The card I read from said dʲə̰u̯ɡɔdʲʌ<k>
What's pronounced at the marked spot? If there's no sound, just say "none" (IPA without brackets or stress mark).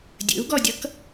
k